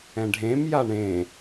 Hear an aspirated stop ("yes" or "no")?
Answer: no